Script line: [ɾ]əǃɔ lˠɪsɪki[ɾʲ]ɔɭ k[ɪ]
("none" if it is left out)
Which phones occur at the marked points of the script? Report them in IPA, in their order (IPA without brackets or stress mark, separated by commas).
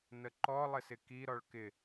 n, ɾ, ɪ